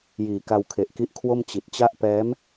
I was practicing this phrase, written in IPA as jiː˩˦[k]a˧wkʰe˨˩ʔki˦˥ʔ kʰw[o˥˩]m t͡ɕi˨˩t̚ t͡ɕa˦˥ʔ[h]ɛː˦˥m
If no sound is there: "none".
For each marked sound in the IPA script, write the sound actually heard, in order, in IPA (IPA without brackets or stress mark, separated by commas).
k, o˥˩, p